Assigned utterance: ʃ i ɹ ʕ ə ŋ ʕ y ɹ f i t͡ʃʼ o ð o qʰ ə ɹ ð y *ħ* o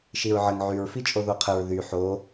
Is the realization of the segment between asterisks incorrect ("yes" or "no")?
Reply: no